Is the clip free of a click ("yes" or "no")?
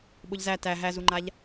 no